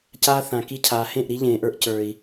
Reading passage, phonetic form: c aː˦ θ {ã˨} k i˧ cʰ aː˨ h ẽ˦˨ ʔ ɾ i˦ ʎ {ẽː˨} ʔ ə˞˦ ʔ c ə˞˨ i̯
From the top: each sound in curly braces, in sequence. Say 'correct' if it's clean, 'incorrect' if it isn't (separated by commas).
correct, correct